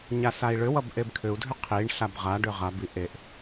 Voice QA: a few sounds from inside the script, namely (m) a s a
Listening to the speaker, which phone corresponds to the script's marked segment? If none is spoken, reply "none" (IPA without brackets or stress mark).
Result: ɲ